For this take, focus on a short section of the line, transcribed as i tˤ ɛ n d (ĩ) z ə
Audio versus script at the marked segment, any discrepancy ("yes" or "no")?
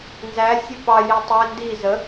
yes